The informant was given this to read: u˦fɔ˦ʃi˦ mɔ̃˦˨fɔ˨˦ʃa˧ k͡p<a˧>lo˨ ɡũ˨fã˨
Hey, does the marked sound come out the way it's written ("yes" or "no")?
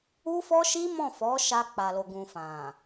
no